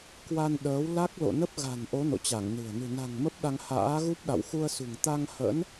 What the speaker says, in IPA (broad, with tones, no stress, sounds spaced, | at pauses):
k w a˧ n ɗ əː˨˦ w l a˦˥ k̚ l o̰˧˨ n ə˦˥ p̚ ɣ a̤˨˩ n ʔ o˨˦ n o̰˧˨ t͡ɕ a˧˩ ŋ n ɨ̤˨˩ ə̯ n ɨ̤˨˩ n a̤˨˩ ŋ m ə˦˥ p̚ ɗ a˧ ŋ h a̰ː˧˥ ɣ u˦˥ p̚ ɗ a̰˧˨ w x u˧ ə̯ s ṳ˨˩ ŋ t̪ a˧ ŋ h ə̰˧˥ n